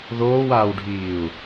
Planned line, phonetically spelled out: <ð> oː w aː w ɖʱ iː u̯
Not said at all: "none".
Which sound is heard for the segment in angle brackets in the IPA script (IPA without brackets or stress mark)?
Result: ð